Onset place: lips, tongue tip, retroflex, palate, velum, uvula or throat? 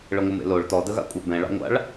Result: retroflex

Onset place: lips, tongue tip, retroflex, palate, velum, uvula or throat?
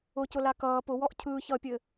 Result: palate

